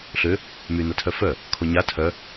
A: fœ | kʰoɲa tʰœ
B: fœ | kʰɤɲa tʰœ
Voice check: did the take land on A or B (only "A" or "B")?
A